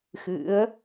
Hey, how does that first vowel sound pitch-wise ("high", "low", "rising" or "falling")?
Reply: rising